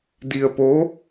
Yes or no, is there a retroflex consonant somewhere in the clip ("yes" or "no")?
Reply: no